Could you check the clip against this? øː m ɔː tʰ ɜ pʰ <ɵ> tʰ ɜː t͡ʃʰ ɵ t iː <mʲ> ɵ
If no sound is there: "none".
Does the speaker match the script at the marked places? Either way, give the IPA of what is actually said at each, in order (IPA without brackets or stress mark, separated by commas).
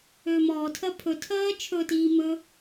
ɵ, m